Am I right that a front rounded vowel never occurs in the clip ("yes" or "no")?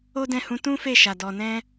yes